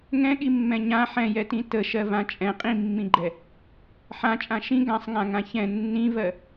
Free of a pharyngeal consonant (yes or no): no